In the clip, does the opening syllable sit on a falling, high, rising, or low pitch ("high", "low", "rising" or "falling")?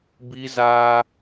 high